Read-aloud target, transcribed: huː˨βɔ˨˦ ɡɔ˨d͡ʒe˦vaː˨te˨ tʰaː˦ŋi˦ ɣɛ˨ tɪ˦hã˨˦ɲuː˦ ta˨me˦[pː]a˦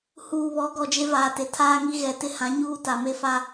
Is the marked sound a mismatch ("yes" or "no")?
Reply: yes